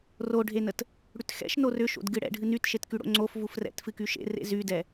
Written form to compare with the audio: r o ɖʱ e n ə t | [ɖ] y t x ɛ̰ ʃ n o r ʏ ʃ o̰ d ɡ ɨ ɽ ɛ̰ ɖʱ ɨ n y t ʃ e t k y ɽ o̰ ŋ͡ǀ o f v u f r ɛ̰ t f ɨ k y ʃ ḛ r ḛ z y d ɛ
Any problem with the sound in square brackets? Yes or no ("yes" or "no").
yes